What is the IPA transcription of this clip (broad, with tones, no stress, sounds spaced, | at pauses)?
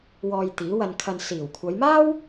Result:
w ɔː˧ j t̪ iː˨˥ w ɐ˧ n kʰ ɐ˧ n s iː˨˩ w kʷʰ ɐ˨˧ j m aː˥ w